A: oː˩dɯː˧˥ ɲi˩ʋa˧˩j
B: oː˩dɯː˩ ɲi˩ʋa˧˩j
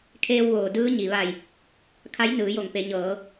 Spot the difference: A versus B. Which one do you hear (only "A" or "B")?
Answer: A